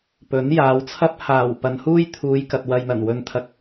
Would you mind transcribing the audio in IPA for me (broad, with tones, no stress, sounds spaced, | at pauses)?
p ɵ˨˥ n j aː˨˧ w t͡sʰ ɐ˥ p̚ h aː˨˩ w p ɐ˨˧ n h uː˥ j t̪ʰ uː˨˧ j k ɐ˨ t̚ w ɐ˧ j n̪ ɐ˨˩ n w ɵ˨˧ n t̪ʰ ɐ˨ k̚